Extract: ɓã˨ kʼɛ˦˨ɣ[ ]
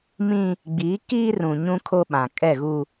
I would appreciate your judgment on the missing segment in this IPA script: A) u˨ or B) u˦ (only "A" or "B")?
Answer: B